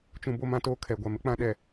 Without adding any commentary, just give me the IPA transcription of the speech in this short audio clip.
t͡ʃ ũ˨ b o˦ m ã˦ t oː˦ kʰ ɛ˨ ɡʷ a˨ m ɪ˨˦ k͡p ã˦ ɗ ɛ˨

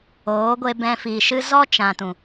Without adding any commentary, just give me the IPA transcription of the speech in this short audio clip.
oː˨˦ ɡʷ e˧ b ɛ̃˧ f i˨ ʃ ɨ˧ z ɔ˦ t͡ʃ ã˨ t ũ˨

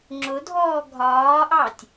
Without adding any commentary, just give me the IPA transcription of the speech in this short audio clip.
ŋ͡ǁ ʊ dʱ ɔː ɡʱ ɒː ʔ ɑ tʲ

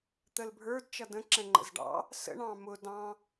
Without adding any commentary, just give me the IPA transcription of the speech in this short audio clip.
t̪ ə l bʱ ə˞ d t͡ʃ ʌ d ə̃ ǁ ɛ̃ ŋ͡ǃ ə̰ z ɖ ɑ̰ | s ə̰ ɳ ɑ̃ m ʊ d ɑ̃

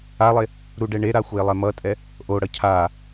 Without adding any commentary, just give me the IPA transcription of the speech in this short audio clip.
a lˠ e | ɾ u ɖ ɛ ɳ e ɾ a xʷ e lˠ ɛ m ʌ tʼ ɛ | ʔ o ɽ ʌ cʰ a

